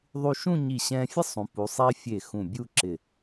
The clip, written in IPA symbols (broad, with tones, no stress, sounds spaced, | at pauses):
ðˤ u˧ ʃ ũ˥˧ ɲ i˧˩ ɕ ɛ̃˧ fʲ ə˥ sˤ ũ˩˧ p u˩˧ sˤ i˧ fʲ e˧˩ x ũ˧˩ bʲ u˥˧ ǁ ɪ˧˩